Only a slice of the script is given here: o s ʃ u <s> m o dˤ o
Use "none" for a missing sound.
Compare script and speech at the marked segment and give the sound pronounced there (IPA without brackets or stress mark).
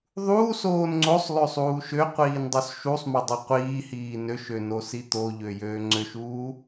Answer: sˤ